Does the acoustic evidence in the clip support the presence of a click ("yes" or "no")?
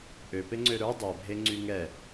yes